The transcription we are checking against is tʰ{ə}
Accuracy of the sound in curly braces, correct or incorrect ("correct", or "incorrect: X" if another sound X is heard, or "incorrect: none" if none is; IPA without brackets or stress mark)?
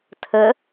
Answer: correct